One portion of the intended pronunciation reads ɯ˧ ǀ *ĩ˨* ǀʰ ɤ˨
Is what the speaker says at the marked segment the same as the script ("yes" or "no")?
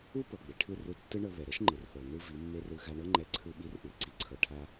no